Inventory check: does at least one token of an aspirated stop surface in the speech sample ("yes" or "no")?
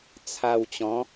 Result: yes